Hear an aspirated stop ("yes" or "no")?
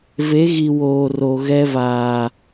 no